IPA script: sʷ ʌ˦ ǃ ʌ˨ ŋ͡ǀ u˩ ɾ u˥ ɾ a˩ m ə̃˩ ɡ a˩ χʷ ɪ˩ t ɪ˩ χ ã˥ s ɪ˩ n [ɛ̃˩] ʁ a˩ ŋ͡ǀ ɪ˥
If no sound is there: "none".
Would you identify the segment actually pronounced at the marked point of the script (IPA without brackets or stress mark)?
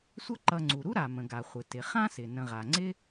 ə̃˩